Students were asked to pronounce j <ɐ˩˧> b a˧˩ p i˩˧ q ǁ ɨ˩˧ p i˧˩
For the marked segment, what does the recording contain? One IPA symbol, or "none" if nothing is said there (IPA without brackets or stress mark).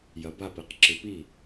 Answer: ɐ˩˧